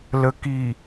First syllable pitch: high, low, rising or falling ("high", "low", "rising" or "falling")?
low